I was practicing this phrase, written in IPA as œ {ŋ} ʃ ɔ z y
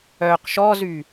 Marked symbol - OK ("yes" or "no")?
no